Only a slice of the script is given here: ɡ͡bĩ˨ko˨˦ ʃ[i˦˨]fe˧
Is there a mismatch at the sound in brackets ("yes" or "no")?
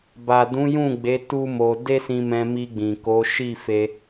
no